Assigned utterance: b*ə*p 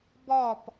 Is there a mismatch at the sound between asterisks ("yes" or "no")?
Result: yes